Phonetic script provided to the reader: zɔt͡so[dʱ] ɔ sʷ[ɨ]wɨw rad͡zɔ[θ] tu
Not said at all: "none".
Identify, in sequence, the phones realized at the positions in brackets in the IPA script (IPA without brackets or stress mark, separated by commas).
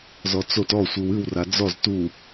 t, ɨ, z